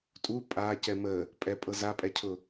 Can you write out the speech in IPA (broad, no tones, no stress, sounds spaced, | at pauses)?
tʼ u pʼ a c ɛ m ə | pʼ ɛ pʼ ɤ z a pʼ ɛ cʰ ʊ